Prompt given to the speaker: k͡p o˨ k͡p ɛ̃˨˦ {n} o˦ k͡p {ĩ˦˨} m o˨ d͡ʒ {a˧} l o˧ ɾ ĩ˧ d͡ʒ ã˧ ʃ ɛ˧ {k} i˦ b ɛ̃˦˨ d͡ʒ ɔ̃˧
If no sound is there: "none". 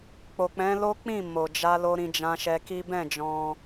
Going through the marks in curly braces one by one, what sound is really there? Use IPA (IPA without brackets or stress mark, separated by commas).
l, ĩ˦˨, a˧, k